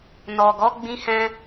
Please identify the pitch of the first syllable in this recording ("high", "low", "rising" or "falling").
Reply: low